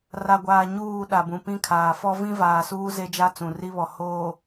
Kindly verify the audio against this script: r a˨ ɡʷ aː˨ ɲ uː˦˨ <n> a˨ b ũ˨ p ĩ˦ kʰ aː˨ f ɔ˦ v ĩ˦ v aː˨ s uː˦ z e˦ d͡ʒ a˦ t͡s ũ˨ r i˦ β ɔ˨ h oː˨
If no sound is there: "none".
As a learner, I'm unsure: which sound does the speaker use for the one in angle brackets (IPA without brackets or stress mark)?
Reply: ɗ